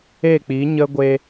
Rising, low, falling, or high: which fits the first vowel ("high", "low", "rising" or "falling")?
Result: falling